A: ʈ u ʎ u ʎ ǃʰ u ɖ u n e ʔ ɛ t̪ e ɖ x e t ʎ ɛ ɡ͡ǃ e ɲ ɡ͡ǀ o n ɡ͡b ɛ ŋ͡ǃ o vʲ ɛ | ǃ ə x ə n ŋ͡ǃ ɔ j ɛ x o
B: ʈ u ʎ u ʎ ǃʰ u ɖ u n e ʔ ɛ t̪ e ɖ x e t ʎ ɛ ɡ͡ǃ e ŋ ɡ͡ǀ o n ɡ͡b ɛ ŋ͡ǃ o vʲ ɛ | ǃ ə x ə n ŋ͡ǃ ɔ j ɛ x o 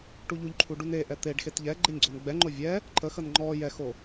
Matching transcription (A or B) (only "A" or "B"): A